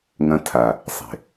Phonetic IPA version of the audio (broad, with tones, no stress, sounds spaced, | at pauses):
ŋ ɐ̃˦ tʰ a˨ | sˤ e̤˨